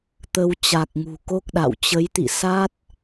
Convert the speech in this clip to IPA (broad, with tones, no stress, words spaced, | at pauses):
t̪ə˧w t͡ɕa˨˩k̚ŋṳ˨˩ko˦˥k̚ɗa̰˧˨w t͡ɕə˨˦jt̪ḭ˧˨sa˦˥t̚